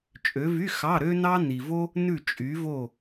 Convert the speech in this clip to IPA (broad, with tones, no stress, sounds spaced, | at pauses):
t͡ʃʼ ø˨˦ v y˧˥˧ x ɑ˧˥˧ ɾ ø˥ n ɑ˥ n i˨ v o˥ | n ʉ˦˨ t͡ʃʼ y˨˦ v o˦˨